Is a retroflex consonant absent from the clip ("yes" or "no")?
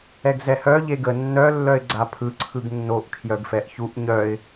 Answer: yes